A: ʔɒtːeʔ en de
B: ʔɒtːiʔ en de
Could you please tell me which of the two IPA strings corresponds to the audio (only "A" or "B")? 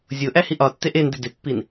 A